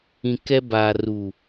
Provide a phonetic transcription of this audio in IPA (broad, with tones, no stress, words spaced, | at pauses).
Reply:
ĩ˨ kɛ˦ baː˨ru˨